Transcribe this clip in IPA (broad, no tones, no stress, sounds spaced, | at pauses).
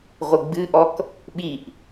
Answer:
ʁʷ ɨ ɡ͡b ɨ ʔ ɔ k | ɓ i ʔ